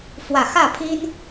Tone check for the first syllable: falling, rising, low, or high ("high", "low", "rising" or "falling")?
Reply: low